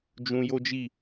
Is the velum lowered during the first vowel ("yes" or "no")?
yes